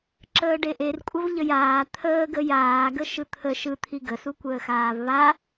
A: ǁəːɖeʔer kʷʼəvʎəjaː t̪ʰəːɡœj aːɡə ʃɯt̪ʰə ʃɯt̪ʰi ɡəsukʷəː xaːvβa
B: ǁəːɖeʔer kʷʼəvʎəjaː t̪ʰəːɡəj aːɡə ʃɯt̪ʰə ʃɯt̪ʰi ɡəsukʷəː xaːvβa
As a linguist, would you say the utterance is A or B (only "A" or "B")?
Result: B